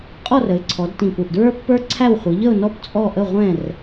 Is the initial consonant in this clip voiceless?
yes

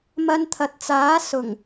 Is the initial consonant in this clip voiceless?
no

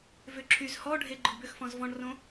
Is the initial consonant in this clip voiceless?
no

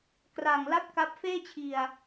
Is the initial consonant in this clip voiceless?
yes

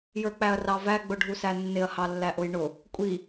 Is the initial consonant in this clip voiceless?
no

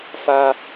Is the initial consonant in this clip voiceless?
yes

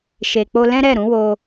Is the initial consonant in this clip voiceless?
yes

